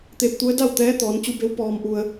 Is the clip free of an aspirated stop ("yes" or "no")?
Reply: yes